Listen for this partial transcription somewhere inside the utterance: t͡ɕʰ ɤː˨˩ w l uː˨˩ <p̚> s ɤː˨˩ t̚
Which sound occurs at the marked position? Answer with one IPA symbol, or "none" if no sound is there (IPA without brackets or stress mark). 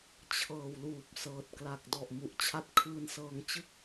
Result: p̚